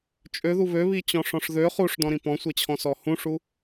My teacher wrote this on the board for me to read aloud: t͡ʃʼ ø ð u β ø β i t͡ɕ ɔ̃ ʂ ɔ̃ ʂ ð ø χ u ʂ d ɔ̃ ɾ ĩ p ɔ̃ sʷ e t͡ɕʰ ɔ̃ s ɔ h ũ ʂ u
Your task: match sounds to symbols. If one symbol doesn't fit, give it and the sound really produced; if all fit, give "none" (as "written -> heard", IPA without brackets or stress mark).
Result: none